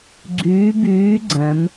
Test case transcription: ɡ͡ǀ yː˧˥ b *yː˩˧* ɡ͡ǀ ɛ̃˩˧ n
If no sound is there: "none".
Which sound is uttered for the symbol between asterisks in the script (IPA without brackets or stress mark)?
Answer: yː˧˥